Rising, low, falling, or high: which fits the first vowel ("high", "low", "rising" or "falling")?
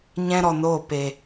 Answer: high